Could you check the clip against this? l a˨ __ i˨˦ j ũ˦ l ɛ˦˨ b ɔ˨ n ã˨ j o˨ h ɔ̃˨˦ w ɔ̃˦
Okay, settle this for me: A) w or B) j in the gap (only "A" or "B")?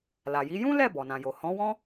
B